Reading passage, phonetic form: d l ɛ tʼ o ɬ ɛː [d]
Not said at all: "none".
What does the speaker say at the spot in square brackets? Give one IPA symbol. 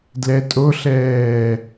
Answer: none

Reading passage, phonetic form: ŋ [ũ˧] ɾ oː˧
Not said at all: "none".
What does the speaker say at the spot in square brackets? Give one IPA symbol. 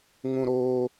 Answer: ũ˧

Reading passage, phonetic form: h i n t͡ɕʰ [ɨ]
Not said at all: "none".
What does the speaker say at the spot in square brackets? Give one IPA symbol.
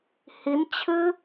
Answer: ɨ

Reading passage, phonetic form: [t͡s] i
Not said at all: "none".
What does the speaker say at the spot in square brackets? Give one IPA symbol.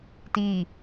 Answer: t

